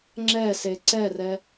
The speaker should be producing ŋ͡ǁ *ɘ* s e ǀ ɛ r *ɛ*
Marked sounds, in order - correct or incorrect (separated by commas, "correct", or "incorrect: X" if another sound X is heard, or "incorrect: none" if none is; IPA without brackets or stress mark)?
incorrect: ɛ, correct